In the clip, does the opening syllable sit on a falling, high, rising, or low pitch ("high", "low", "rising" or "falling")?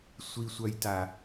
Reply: low